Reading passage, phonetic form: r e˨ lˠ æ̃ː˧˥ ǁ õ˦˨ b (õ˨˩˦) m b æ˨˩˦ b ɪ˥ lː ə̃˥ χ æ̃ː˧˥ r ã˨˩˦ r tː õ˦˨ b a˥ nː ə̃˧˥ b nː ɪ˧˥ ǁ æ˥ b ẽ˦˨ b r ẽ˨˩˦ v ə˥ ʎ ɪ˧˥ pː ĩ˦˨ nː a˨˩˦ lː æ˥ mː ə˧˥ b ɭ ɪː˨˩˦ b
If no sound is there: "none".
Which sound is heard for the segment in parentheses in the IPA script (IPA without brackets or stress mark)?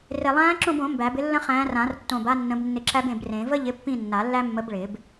õ˨˩˦